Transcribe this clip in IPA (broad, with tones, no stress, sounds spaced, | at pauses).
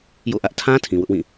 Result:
j o̰˦˨ ʔ ä˦ ʔ tʰ ã˦ tʰ ĩ˨ w ʊ˦ ʔ w ĩ˦˨